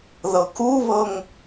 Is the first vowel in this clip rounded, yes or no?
no